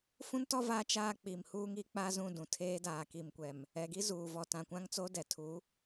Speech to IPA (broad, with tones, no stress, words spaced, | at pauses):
fũ˦ntɔ˦ vaː˦t͡ʃaː˦ k͡pi˨m huː˦ŋi˦k͡paː˦zũ˦˨ dũ˨tʰeː˦ daː˨ki˨mkʷɛ˨m | ɛ˨ɡi˦ zuː˨ vɔ˨tã˨kʷã˦ŋt͡so˦ dɛ˨tʰu˨˦